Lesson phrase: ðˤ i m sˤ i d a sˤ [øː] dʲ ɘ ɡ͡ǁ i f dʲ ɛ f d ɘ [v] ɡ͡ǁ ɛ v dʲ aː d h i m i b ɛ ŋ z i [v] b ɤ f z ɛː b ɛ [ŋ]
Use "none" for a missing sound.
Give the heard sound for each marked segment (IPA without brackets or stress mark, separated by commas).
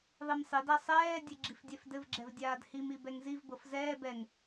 ɛː, v, v, ŋ